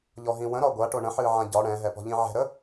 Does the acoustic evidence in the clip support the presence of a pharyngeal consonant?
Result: yes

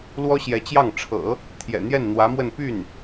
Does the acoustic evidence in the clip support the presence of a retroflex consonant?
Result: yes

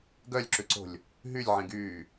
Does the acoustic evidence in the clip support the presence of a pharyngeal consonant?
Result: yes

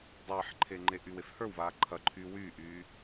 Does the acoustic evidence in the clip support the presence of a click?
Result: yes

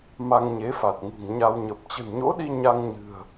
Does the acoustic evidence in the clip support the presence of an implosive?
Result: yes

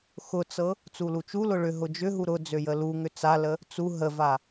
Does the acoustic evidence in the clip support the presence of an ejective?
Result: no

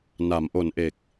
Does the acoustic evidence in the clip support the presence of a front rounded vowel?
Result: no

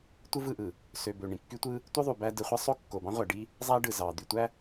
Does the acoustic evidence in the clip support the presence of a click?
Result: no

